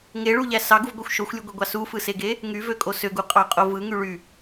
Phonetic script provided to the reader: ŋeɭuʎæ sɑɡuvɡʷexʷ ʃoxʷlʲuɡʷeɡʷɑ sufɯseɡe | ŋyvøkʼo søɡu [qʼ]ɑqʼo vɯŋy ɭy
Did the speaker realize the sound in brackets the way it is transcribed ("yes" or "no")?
yes